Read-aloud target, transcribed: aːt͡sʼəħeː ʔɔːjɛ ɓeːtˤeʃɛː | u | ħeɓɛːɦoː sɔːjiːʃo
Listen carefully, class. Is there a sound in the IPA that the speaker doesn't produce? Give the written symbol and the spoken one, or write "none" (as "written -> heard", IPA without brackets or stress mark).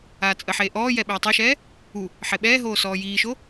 none